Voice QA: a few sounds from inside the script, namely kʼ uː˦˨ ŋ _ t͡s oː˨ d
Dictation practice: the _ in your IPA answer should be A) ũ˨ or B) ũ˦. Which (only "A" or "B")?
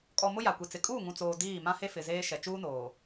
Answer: A